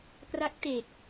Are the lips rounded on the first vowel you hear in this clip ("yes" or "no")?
no